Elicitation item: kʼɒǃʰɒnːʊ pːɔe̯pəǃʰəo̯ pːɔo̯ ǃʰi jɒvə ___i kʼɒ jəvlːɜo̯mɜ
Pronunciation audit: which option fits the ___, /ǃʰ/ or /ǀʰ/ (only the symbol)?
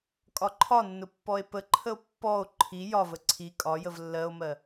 ǀʰ